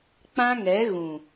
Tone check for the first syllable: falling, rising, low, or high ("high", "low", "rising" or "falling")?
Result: high